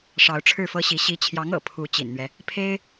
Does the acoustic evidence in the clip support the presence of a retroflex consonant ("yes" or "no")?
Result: yes